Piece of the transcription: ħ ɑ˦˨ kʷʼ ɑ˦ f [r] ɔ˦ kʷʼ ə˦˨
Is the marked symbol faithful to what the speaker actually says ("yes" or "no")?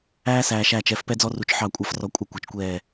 yes